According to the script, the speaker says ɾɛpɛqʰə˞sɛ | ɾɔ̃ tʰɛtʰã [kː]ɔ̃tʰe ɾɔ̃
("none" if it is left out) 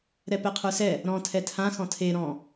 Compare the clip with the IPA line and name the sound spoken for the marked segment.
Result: x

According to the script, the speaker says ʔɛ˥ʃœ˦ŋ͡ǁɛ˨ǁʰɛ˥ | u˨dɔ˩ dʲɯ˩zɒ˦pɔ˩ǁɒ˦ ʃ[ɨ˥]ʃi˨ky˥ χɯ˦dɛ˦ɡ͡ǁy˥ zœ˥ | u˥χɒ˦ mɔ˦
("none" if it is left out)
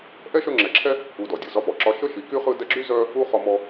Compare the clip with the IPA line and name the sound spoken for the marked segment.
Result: ə˥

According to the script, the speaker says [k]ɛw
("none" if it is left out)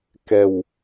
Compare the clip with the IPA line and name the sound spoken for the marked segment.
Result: k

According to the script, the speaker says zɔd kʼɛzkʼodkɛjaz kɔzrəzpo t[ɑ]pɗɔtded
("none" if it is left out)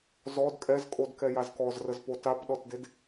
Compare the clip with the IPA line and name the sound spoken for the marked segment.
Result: a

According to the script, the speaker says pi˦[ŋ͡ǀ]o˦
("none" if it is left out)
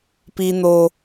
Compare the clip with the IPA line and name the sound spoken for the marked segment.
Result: n̪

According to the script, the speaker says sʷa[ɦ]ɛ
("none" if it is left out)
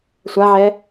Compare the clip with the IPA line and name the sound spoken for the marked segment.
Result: ʕ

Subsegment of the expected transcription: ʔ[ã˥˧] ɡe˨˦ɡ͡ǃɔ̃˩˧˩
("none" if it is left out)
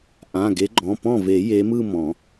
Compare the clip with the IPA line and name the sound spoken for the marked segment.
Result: ã˩˧˩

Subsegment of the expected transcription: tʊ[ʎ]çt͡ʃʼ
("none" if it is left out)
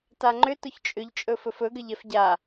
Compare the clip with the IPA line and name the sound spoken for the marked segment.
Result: none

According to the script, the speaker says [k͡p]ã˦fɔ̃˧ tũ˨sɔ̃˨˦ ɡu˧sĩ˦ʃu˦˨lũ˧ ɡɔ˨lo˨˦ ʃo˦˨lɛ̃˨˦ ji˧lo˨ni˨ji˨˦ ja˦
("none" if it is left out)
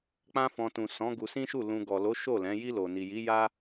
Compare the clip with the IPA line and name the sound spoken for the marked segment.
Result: k͡p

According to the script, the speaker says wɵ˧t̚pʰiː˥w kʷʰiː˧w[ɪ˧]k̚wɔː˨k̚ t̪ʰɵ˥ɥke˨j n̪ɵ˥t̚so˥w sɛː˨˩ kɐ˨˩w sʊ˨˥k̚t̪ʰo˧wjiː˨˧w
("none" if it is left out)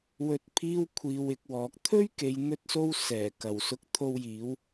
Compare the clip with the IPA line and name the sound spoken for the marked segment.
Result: ɪ˧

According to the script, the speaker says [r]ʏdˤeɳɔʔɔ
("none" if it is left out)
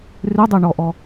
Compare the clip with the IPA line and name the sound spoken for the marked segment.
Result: r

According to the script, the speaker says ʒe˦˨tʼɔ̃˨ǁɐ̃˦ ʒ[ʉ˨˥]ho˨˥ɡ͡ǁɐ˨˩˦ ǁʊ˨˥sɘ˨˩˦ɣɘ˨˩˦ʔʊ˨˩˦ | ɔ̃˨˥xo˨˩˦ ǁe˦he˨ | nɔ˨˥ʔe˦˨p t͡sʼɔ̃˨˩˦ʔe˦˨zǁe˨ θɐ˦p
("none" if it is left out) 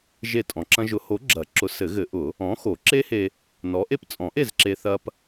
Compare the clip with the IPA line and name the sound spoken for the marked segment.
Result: ʊ˨˥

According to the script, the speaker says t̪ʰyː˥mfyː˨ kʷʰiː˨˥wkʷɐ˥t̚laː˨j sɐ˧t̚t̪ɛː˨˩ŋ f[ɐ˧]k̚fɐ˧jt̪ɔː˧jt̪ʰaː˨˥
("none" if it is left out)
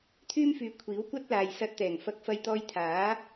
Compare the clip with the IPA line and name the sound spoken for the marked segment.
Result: ɐ˧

